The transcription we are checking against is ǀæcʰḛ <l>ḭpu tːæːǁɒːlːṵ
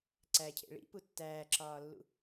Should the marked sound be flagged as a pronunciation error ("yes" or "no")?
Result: yes